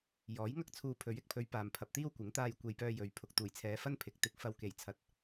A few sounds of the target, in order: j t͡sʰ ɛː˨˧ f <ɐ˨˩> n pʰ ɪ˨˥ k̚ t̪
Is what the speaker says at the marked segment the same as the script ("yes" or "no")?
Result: no